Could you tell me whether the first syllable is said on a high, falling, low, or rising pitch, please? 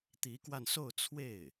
rising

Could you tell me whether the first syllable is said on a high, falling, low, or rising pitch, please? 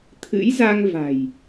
rising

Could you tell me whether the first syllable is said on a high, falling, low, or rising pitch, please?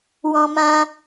high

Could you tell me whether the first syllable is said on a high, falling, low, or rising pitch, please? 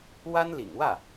high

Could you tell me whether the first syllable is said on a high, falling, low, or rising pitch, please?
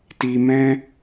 low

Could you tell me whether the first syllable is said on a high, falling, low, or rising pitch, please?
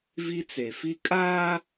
high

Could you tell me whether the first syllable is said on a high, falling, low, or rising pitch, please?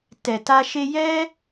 low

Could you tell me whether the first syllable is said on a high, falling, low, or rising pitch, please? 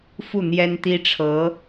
falling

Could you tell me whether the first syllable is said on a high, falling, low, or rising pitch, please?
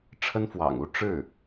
high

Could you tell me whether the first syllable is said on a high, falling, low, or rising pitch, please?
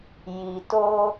low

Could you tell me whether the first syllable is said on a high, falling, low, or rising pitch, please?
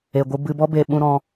low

